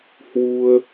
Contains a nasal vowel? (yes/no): no